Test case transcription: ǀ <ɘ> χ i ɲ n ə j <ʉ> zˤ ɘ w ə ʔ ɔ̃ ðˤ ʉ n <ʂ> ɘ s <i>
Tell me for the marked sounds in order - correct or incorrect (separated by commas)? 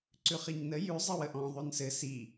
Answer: incorrect, correct, incorrect, correct